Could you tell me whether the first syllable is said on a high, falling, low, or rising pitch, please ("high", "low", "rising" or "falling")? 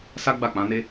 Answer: high